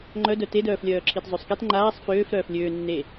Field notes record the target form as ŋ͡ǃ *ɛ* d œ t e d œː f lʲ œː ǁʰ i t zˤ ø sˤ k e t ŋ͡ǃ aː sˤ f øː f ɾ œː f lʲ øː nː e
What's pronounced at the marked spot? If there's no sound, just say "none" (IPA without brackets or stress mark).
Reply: œ